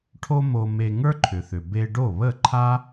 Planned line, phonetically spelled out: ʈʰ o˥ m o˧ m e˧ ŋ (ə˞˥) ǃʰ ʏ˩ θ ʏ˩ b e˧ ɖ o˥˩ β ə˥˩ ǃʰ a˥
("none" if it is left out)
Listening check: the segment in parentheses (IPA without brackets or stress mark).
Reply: ə˞˥